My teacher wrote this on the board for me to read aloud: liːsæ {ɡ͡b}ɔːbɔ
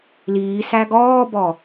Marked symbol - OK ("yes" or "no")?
no